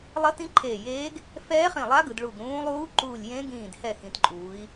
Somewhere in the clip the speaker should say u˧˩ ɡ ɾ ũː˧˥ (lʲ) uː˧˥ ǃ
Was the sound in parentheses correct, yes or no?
no